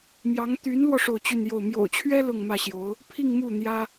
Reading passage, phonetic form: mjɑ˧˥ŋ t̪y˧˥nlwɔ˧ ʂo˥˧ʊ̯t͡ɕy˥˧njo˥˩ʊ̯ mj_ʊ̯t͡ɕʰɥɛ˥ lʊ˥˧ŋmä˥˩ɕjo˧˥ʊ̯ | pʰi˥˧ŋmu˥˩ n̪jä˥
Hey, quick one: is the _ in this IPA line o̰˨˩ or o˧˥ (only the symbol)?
o̰˨˩